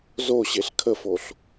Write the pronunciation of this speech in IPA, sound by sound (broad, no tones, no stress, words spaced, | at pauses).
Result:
zoɕeɬ kʰəfoɬ